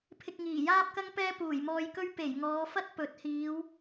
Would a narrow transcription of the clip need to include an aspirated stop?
yes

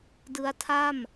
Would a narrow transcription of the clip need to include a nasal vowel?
no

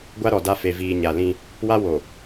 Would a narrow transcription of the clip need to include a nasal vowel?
yes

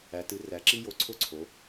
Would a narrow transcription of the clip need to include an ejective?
no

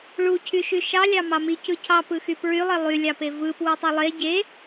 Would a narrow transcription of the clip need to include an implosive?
no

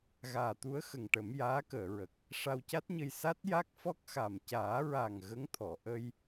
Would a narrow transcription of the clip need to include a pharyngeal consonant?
no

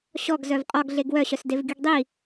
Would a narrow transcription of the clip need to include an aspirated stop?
no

